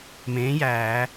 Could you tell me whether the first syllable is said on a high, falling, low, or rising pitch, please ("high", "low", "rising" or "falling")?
rising